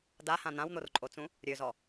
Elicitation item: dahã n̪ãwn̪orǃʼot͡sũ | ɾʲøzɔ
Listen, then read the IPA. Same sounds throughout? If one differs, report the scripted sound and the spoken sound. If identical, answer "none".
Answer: none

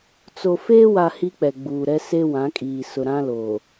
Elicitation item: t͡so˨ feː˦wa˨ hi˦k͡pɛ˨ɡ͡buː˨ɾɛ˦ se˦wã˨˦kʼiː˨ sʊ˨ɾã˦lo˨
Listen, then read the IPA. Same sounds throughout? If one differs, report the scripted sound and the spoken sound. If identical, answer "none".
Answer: none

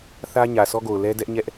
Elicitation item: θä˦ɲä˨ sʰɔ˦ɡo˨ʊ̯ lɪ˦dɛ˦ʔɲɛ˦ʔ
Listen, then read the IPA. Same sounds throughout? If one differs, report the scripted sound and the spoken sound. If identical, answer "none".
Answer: ɪ˦ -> ɛ˦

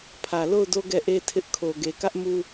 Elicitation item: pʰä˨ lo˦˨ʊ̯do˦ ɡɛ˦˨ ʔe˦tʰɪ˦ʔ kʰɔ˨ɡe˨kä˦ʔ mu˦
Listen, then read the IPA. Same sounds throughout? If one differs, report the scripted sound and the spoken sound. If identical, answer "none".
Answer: ɔ˨ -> o˨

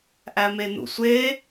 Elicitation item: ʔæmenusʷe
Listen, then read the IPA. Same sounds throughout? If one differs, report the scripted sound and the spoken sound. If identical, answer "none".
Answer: u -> ṵ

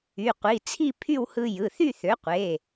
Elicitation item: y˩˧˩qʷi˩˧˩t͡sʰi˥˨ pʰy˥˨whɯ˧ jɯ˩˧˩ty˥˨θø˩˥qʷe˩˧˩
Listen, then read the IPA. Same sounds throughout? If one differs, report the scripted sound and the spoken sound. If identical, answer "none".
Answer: t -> θ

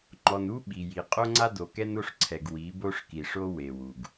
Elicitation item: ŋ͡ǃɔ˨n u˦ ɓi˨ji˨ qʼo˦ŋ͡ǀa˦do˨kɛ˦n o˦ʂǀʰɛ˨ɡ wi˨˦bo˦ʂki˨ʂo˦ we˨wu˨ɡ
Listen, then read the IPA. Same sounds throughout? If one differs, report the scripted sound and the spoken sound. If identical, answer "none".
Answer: none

